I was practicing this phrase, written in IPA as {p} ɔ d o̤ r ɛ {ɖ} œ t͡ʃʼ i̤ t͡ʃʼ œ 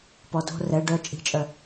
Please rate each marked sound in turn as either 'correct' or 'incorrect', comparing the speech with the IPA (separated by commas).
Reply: correct, correct